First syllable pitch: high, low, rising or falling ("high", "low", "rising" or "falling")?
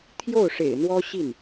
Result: falling